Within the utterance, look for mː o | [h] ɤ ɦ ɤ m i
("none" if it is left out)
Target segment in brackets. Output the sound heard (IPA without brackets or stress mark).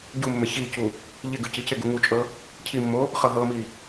χ